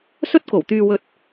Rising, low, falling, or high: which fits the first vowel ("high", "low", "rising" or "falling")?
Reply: high